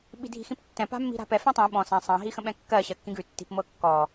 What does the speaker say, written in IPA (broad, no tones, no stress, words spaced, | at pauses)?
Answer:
ɓi̤dʱi̤xĩptːɛ̃ pa̤mːi̤ɾa̤pɛ fɛ̃tˤĩ ɓɔ̃ sã sˤɑ̃ ɦixə̃ɓɛ̃kːɜ ɕɜkːĩɡʉ tːi̤pmɤkːɔ